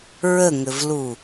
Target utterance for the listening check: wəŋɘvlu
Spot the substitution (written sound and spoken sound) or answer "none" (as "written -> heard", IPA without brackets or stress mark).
w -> ɹ